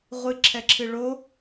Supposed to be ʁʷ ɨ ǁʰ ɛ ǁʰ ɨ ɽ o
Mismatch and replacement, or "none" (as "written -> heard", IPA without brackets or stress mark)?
ɽ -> ɭ